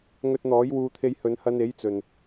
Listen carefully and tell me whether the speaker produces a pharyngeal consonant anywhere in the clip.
no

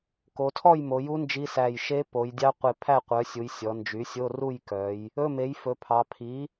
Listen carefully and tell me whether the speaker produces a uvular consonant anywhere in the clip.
yes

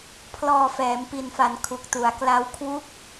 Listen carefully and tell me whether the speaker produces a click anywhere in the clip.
no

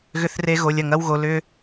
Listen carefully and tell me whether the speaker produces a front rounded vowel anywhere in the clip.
yes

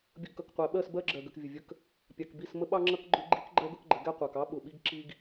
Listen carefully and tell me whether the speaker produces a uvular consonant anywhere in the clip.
yes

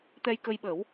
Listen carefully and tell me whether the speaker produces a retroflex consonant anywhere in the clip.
no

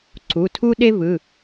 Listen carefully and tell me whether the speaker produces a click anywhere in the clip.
yes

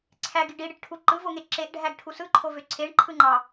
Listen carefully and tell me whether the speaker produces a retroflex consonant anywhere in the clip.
yes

